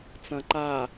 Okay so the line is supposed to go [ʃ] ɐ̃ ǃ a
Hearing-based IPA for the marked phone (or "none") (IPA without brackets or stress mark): t͡s